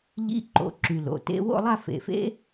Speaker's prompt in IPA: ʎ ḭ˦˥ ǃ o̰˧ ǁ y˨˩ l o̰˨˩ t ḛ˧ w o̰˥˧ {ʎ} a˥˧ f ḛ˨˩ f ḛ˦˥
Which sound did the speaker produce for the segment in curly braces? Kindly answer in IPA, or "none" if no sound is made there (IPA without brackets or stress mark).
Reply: lˠ